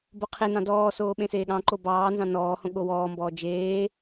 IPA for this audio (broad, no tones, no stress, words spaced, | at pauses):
boqʰenɑ̃ dɔːsoː ɓẽseːɠɑ̃ǃo bɑː nzɑ̃nɔːhõ ɠowɔːmbɔː d͡ʒeː